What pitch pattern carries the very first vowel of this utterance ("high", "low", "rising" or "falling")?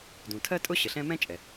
low